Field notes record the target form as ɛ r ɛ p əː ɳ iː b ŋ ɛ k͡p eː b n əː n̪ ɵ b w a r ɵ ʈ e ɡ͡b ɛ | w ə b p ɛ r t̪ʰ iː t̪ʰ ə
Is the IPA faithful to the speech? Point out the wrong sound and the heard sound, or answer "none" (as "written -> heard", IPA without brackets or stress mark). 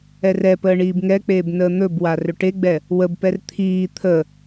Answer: none